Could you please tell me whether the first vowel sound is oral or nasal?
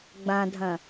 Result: nasal